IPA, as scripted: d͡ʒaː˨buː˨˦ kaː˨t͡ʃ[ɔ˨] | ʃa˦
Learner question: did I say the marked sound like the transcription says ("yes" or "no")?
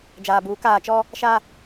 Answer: no